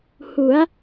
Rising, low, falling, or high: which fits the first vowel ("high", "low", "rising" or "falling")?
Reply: rising